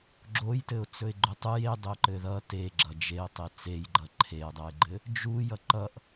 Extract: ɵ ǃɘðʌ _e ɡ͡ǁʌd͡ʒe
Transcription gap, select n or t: t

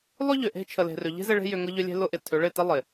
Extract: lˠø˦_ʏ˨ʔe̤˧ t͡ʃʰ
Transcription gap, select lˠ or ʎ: ʎ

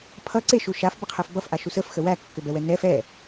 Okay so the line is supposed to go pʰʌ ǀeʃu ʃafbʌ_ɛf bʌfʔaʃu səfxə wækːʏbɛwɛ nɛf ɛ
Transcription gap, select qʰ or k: qʰ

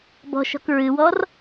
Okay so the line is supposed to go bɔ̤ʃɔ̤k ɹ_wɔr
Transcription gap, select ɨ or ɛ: ɨ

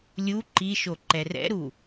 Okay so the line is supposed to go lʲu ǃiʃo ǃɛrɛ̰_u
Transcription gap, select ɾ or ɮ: ɾ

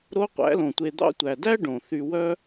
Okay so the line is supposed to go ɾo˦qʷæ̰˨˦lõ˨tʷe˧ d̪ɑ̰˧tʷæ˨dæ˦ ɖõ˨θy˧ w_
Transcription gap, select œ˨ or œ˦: œ˦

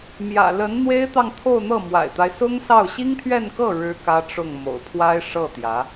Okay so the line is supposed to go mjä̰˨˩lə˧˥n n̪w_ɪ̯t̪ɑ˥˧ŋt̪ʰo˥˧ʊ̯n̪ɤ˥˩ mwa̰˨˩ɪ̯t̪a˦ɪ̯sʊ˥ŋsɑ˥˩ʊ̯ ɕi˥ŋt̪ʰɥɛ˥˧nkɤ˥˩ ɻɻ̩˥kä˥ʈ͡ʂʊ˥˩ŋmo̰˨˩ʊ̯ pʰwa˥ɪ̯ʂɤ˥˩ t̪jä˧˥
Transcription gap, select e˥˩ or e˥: e˥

